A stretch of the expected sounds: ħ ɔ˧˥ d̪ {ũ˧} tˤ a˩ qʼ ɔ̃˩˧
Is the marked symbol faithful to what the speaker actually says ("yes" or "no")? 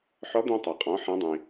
yes